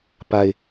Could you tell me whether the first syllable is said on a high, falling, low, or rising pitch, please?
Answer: high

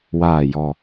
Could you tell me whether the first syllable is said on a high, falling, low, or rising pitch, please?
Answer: low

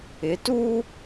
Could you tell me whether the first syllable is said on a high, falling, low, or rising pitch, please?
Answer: rising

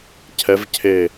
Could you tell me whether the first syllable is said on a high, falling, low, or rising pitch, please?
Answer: rising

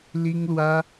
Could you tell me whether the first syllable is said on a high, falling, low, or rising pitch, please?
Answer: high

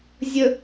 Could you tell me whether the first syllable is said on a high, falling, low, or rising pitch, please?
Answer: low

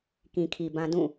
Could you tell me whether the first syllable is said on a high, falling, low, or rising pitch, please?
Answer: low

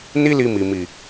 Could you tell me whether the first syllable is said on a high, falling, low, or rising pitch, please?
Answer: high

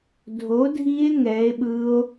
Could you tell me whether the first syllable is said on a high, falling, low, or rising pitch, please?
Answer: rising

